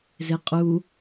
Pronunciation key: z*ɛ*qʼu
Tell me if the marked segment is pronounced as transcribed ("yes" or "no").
no